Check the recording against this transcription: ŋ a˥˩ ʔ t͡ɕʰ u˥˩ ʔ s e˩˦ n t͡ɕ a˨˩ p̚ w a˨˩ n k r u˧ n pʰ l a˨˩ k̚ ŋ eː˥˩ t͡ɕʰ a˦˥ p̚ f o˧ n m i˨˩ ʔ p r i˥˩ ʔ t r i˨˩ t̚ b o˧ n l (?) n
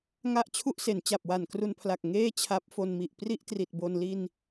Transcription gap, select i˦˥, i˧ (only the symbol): i˧